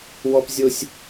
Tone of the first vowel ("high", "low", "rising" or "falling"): low